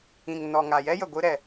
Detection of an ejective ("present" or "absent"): absent